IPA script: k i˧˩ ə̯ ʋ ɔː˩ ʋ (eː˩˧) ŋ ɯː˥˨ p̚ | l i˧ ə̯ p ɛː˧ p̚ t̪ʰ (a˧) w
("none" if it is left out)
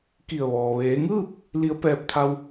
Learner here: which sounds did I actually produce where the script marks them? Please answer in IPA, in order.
eː˩˧, a˧

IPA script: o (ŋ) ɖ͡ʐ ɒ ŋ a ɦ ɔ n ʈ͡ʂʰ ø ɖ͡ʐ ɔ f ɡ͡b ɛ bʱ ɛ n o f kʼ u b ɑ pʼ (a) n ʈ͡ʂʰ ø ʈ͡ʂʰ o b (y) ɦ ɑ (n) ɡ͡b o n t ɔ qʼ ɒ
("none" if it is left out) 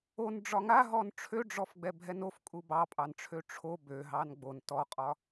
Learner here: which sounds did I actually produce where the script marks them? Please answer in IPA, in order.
n, ɑ, ø, n

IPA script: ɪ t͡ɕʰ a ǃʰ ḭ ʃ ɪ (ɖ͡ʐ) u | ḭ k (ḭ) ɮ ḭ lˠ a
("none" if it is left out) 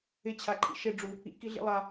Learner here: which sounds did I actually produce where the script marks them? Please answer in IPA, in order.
ɖ͡ʐ, i

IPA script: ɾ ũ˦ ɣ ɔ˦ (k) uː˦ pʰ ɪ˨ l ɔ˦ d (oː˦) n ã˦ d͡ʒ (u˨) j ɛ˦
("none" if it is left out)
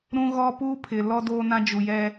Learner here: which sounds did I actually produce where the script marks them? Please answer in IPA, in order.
p, oː˦, u˨

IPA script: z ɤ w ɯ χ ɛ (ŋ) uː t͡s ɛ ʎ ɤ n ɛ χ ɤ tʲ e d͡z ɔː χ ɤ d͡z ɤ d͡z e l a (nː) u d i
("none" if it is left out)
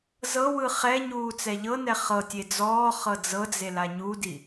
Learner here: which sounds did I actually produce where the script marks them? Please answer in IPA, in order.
ɲ, ɲ

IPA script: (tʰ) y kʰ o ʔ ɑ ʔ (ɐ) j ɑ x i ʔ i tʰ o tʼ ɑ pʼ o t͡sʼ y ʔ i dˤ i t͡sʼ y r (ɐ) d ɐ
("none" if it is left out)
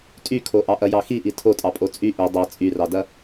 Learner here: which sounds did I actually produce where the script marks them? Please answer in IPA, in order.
tʼ, ɐ, ɑ

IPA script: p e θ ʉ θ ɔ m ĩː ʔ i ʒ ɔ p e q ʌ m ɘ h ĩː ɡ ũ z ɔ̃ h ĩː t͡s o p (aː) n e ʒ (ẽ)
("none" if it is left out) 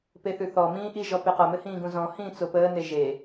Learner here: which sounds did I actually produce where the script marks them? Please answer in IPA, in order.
əː, e

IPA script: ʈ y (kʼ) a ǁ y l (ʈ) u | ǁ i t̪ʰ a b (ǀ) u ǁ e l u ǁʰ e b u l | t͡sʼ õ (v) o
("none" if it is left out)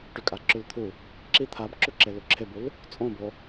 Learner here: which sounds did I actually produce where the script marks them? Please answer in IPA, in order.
kʼ, t̪ʰ, ǁ, b

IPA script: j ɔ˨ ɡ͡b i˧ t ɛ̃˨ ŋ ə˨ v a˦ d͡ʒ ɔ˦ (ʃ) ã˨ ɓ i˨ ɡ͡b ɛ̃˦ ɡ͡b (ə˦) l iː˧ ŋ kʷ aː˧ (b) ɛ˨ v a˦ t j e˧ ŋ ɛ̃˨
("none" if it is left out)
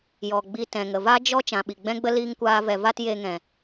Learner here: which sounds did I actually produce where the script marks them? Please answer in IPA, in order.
t͡ʃ, ə˦, v

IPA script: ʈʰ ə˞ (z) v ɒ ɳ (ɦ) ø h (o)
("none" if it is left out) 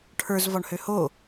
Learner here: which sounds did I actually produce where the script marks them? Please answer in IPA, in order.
z, h, o

